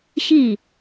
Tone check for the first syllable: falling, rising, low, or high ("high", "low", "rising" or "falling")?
falling